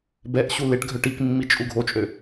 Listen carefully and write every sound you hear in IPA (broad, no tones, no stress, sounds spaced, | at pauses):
b ɛ ʔ ɕ u l e ʈ ɡʱ œ ʈ i k mː i t͡ʃʼ u ɡʱ o t͡ʃʼ ø